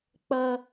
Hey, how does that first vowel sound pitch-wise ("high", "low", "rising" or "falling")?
high